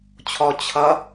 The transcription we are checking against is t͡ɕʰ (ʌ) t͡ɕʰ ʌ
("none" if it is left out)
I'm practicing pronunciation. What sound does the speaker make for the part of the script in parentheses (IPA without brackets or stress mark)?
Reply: ɔ